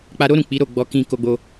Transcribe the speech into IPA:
k͡p a˧ ɾ o˦ ɾ ũ˦˨ k͡p i˨˦ ɾ o˦˨ ɡ͡b ɔ˧ k ĩ˧ k o˧ ɡ͡b o˧

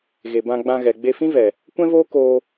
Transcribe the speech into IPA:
ɣ e˨ b ã˧ ɡ͡b ã˧ ɣ ɛ˨ ɡ͡b e˧ f ĩ˦ v ɛ˨ | kʷ ɛ̃˦ v oː˦ k oː˧

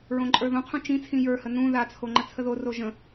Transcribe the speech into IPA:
ɹ õ ǃʼ ə˞ ð õ qʰ ũ t͡ʃ ĩ t͡sʰ ĩ j ə˞ h ə n ũ ð a t͡sʰ o ŋ͡ǃ ə t͡sʰ ə ð o r o ʒ ə̃

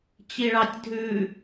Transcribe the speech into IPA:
t͡ɕ i ɭ ɑ tʲ dʱ ʉ

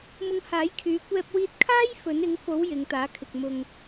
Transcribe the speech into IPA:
m ʊ˧ ŋ h aː˨˥ j kʰ yː˨˧ kʷ ɛː˧ p̚ w iː˧ t̚ kʰ aː˥ j f ɵ˨˥ n ɪ˨˥ ŋ f o˨˥ w j ɪ˨˧ ŋ t̪ aː˨˥ kʰ ɪ˨ k̚ m ʊ˨ ŋ

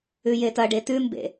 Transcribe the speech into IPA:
ʉ j e t ɐ ɖ e t ʉ m b ḛ

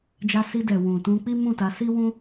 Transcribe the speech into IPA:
d͡ʒ a˧ s i˧ d ɛ˨ w ũ˨ t ũ˧ k͡p i˦ m ũ˦˨ t a˨˦ s i˦ w ũ˦

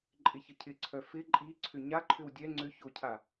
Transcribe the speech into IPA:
ǃʼ ɪ ç ə cʰ ɪ ǀʰ œ f ɪ ǃʼ i ǀʰ ʏ ɲ a ǃʰ ʏ w dʲ ɛ ŋ͡ǀ ʏ ç o cʰ a

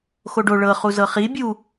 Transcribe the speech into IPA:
x o ɖ o ɭ ɤ χ u z ɤ χ i bʲ u

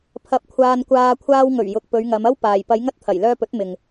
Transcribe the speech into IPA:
pʰ ɐ˧ p̚ kʷʰ aː˧ n kʷ aː˧ kʷʰ aː˧ w ŋ ɵ˨˩ ɥ j ʊ˨ k̚ p ɵ˨˧ ɥ ŋ ɐ˨˧ m ɐ˥ w p aː˨ j p ɐ˨˧ j ŋ ɐ˧ t̚ t̪ʰ ɐ˨˩ j l œː˧ p ɵ˨˥ t̚ m ɪ˨ ŋ

